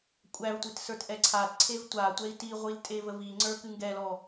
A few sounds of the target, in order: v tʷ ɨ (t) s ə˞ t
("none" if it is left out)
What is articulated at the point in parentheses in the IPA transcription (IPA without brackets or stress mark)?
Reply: t